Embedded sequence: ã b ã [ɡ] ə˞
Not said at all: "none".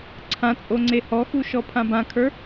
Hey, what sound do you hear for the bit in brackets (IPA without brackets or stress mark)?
kʰ